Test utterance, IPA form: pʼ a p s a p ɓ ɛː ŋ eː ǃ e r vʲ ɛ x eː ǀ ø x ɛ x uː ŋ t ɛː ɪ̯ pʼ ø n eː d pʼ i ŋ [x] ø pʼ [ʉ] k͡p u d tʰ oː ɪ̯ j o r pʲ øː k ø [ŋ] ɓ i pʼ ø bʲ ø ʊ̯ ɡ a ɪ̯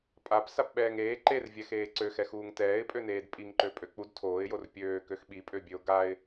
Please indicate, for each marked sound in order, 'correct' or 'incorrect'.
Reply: incorrect: ǃ, incorrect: ø, incorrect: x

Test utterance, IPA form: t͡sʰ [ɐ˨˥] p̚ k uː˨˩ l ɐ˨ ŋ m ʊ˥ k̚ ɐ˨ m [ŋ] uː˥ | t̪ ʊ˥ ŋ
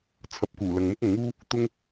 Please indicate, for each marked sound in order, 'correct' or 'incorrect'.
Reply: correct, correct

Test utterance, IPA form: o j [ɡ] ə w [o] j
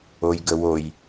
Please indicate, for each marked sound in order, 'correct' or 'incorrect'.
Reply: correct, correct

